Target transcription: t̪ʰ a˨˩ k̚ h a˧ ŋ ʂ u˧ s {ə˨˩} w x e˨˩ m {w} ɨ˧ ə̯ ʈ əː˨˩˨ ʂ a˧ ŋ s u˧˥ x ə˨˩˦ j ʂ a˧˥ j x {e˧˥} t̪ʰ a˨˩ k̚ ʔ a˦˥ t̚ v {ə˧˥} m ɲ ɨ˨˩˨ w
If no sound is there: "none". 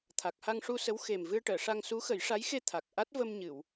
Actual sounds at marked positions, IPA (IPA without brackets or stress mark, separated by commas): ə˧˥, v, e˧, ə˧